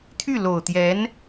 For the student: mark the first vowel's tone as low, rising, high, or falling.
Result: falling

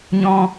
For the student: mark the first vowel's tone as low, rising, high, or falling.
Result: high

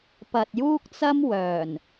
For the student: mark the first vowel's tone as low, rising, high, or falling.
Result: low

